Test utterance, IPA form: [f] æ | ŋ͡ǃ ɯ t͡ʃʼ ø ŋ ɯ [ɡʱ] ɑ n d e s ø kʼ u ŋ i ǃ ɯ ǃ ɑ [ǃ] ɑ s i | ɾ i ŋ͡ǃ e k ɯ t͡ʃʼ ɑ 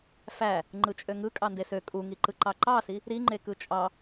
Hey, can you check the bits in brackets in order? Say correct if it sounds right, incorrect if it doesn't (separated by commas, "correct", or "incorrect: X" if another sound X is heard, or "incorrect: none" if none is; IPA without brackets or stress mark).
correct, incorrect: kʼ, correct